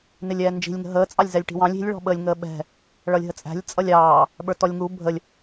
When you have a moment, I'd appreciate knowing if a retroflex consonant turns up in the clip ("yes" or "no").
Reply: yes